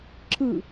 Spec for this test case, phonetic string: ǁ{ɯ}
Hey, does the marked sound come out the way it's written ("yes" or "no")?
yes